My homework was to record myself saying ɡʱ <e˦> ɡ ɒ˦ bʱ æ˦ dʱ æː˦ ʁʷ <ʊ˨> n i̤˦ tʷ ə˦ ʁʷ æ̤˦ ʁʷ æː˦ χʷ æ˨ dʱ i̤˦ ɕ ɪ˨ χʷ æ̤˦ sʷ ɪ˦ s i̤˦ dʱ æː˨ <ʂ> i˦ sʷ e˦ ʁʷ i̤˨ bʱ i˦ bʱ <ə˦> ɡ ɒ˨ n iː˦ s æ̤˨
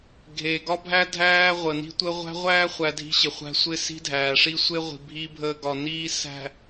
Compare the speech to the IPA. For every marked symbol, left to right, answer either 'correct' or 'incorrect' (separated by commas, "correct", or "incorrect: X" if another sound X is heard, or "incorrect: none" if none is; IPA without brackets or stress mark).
incorrect: e˨, incorrect: ə˨, correct, incorrect: əː˦